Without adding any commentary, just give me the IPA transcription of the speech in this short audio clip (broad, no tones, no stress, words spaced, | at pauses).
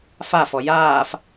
fafɔ jaːf